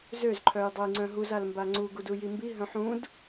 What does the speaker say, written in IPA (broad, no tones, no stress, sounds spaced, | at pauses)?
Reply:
z ø z ǃʰ œ j dˤ ɛ j ŋ͡ǀ œ̃ ɦ u z a l m b a ŋ͡ǀ u ɡ u d u j i m b i ɦ œ̃ ħ ũ d